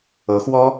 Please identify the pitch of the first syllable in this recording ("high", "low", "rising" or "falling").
rising